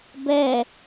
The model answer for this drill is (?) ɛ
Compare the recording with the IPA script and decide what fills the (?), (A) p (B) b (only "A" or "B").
B